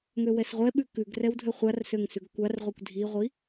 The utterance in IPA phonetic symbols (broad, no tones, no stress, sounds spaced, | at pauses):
ŋ ø w ɛ s ʁʷ ɛ ɓ ʉ k ʉ ɡ r ɛ w dʱ ø χʷ a r s ø ŋ s ʉ ɡ kʷ a r ʁʷ i kʷ dʱ i ʁʷ i